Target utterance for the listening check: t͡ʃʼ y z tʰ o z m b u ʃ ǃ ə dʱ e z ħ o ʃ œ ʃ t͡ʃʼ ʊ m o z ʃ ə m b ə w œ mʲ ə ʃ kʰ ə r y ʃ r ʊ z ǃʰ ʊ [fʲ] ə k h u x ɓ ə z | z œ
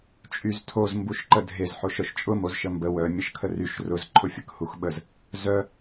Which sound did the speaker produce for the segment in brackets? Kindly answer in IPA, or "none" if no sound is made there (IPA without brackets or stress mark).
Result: fʲ